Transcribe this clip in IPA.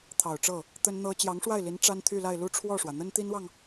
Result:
t̪ʰ ɑ˨˩ ʊ̯ ʈ͡ʂ ɤ˥˩ | t̪ ə˥ n n̪ ɤ˥ t͡ɕ j ɑ˧˥ ŋ ʂ w a˥˩ ɪ̯ l i˧˥ n ʈ͡ʂ a˥ n t̪ʰ y˥˧ l a˥˧ ɪ̯ l u˥˧ ʈ͡ʂʰ w ɔ˥˩ ʂ w ä˩ n̪ ə˥ n t̪ i˥ n w ɑ˨ ŋ

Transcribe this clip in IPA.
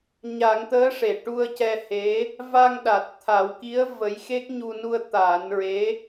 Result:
ɲ a˨˩˦ ŋ t̪ əː˧˥ ʂ e˨˩˨ ʈ u˧ ə̯ c ɛ˧ h e˧˥ | v a˧ ŋ ɗ a˨˩ t̚ t̪ʰ a˨˩˦ w k i˧˥ ə̯ v ə˧˥ j x e˦˥ k̚ ɲ u˧ n u˧ ə̯ t̪ aː˨˩˦ n ɹ e˧˥

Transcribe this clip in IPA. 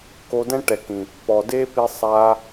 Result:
k o˧ d ɛ̃˦ ʈ ɛ˨ k ĩ˨ | p ɔ˨ d e˦ p i˧ sˤ a˧

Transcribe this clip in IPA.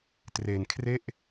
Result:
t r e˧ n kʰ r e˥˩ ʔ

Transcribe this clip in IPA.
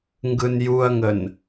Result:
ŋ ɡ ɯ n j u ɐ̯ ŋ ə n

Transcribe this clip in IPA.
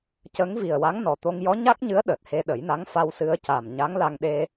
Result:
c ə˧˥ ŋ v i˨˩ ə̯ w a˧˥ ŋ n ɔ˨˩ t̪ o˧ ŋ j ɔ˧˥ ɲ a˦˥ k̚ ɲ ɨ˧˥ ə̯ ɗ əː˨˩ t̚ h e˧ ɗ ə˨˩˦ j n a˧˥ ŋ f a˧ w s ɨ˧ ə̯ c a˨˩ m ɲ a˧˥ ŋ l a˧ ŋ ɗ e˧

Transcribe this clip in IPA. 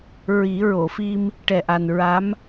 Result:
ɹ i˨˩˦ ɹ o˨˩˨ f i˧ m | ʈ ɛ˧ ʔ a˧ n ɹ a˧˥ m

